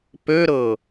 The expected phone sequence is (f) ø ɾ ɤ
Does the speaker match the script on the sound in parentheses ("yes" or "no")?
no